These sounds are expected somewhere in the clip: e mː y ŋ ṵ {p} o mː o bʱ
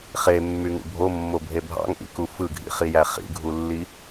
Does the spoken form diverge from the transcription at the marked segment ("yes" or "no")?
yes